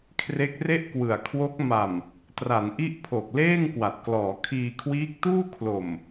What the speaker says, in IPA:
kʰre˦˥k̚re˥˩ʔkwɯ˨˩a̯kʰwo˦˥k̚ ma˨˩m | tra˩˦nʔi˦˥ʔpʰo˨˩k̚ leː˥˩ŋkwa˨˩t̚klɔː˩˦ kʰiː˧kʰwiː˦˥k̚tuː˥˩ kʰlo˨˩m

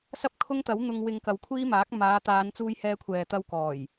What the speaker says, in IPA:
sɐ˥p̚kʰʊ˥ŋt̪ɐ˨˥w n̪ʊ˧ŋwɪ˧ŋkɐ˨˧w kʷʰiː˥maː˨˥k̚ maː˨˧t̪aː˨˧nt͡suː˧j hɛː˧kʷʰɛː˨t̪ɐ˧w kɔː˨˩j

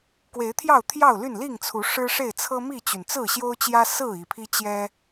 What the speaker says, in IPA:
kwe˨˦ɪ̯t̪ʰjɑ˥˨ʊ̯t̪ʰjɑ˥˨ʊ̯ly˥˨n li˥˨ŋt͡sʰu˨˦ ʂɻ̩˦ʂe˥˨ɪ̯ t͡sʰɤ˦mi˥˨t͡ɕy˩n t͡sɹ̩˥˨ɕjo˦ʊ̯t͡ɕjä˦ sɹ̩˥˨ i˨˩pʰi˦ t͡ɕjɛ˦

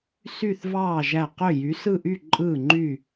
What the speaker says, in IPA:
sy˦˨θvɑː˦˨ ʒæ˦˨ qø˦˨ jy˨˦sɯ˦˨ʔy˦˨ ǃʼɯː˦˨ŋ͡ǃy˦˨

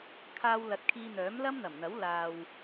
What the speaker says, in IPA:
kʰaː˧wlɐ˨˥t̚kʰiː˧ n̪œː˨˥mlɐ˥mn̪ɐ˨˩mn̪ɐ˨˥w laː˨w

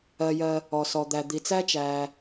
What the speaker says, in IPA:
ɜ˩jɜ˩ | ɔ˩sɔ˩ d̪æ˩d̪i˩t͡sæ˥t͡ʃæː˩

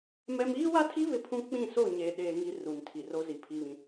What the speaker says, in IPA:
mɛ˦m iː˦wa˦tʰi˦ βɪ˦pʰũ˦ k͡pĩ˦˨so˦˨ ɲe˨ ɗeː˦ŋi˦ ru˨ntʰi˨r o˦zi˨pʰi˦βĩ˦

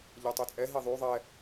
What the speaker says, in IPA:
ʎɛtˤøt͡sʼɛ ɦiðˤy ðˤɛ

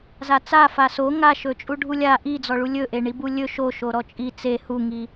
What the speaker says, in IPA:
zat͡sa faso ŋaʃɵt͡ʃʼu ɖʱulʲa ʔid͡zɔɭu lʲɵʔeɳibu lʲɵ ʃo ʃoɾɔt͡ʃʼi t͡se huŋi

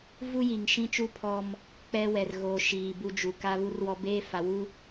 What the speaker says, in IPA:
vu˦ji˨ŋ ʃĩ˦t͡ʃu˦ pʰɔ˦m | k͡pɛ˦wɛ˨rɣoː˨ ʃiː˨bu˦d͡ʒu˨ ka˦βu˦rwɔ˦ beː˦fa˨wu˦

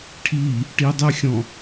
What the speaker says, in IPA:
ʈʰi | ʈidˤəxʲɔ̃

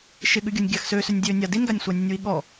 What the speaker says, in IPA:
ʃɪɠʉɡʲonʲ ɡʲaxsøsønʲ dʲøːnʲa dinɡanʲ sʷanʲənʲwiɠɔ

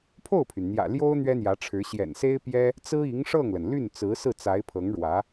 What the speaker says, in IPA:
pʰo˥˩ʊ̯pʰy˩nn̪jä̰˨˩ ljo˥ʊ̯ n̪ɥɛ˥n̪jä˧˥ʈ͡ʂʰɻ̩˧˥ ɕjɛ̰˨˩nse˥ɪ̯pjɛ˥ | t͡sɹ̩˥i˧˥ŋʂɤ˥˩ŋlə˩n ly˥˩nt͡sɹ̩˧˥sɹ̩˥˩ t͡sa˧˥ɪ̯pʰɤ˧˥ŋɻwä˧˥

